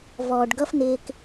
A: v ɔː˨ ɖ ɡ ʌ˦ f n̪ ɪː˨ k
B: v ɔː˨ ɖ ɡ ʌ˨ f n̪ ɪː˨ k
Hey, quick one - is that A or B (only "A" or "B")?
A